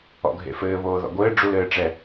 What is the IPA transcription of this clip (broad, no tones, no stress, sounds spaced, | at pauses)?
ɔ̰ ɡʱ ḛ f ɘː β oː ð ɔ̰ ɡʷ ɘː ɖ͡ʐ u l ɘː ʈ͡ʂ ɛ